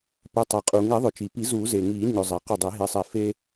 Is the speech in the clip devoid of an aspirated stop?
yes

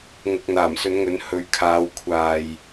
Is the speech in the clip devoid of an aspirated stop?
no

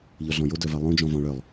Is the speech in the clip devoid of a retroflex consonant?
no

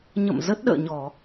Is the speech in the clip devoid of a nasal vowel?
yes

